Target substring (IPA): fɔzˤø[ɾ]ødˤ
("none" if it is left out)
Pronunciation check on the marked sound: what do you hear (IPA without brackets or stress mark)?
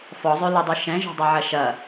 l